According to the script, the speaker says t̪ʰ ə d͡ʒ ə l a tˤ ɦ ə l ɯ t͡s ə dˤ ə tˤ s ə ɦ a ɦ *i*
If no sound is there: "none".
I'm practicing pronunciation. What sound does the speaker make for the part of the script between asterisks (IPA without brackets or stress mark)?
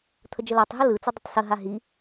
i